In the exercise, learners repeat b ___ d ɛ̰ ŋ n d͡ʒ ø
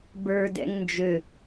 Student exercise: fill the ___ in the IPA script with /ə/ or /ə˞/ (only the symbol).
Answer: ə˞